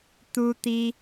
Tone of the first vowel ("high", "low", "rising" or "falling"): high